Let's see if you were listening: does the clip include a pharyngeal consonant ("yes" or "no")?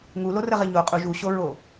no